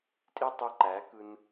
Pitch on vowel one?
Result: high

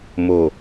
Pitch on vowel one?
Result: low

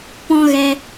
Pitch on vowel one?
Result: high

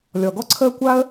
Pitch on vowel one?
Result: low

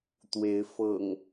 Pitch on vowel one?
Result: rising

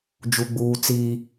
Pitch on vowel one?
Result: high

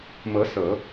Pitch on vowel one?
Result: rising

